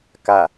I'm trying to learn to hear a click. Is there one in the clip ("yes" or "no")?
no